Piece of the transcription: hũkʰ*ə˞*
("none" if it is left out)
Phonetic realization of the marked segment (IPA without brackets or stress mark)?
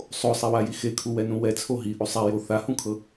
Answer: ɤ